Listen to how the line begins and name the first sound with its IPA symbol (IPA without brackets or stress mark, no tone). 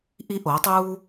ʔ